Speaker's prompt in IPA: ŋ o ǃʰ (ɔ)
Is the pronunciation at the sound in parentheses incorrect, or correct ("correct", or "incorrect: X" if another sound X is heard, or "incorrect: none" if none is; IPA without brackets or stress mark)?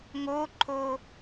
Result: incorrect: o